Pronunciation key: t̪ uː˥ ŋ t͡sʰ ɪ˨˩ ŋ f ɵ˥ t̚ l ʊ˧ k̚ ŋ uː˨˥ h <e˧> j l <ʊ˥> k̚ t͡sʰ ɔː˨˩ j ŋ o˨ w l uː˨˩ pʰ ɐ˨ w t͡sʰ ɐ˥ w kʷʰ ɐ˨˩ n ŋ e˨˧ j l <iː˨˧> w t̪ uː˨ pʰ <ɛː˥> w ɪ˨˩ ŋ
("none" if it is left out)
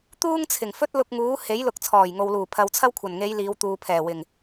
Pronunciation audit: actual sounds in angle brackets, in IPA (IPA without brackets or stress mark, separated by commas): e˨˥, ʊ˨˥, iː˨˧, ɛː˨˩